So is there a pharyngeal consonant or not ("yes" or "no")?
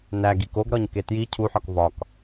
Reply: yes